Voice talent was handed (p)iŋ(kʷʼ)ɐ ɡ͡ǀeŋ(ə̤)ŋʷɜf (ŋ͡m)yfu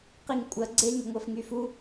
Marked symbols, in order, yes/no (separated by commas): no, yes, yes, no